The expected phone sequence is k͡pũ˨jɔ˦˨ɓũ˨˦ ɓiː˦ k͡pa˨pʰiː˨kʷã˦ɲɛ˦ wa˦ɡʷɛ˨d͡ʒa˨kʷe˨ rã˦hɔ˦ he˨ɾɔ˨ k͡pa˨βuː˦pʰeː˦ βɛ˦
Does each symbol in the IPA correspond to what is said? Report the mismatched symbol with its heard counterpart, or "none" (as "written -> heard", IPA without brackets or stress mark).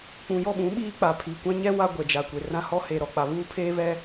none